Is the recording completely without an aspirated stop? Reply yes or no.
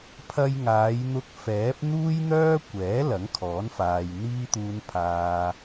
no